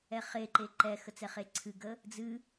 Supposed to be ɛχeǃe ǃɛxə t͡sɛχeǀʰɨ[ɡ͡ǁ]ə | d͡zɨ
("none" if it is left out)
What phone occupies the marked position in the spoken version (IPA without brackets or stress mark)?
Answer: ɡ